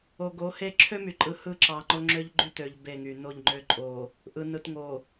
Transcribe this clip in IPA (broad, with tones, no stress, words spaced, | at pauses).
o˨ɡo˨˦he˦ ǁʰø˦my˨ǃʼɯ˨ hɯ˦ǁɑ˨ŋ͡ǃo˦ ŋ͡ǁø˦ʎɡ͡ǃy˦tø˨ʎ be˦˨ŋy˨ no˦˨ʎŋ͡ǃø˦ǃʼo˨ | ʔɯ˨nɯ˨tŋo˨